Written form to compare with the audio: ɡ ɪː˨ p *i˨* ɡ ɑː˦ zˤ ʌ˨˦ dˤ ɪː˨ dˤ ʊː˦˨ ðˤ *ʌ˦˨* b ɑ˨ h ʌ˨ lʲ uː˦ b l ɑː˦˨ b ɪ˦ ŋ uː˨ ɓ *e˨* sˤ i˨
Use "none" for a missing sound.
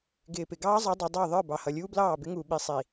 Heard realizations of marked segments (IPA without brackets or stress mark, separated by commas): ɪ˨, ə˞˦˨, i˨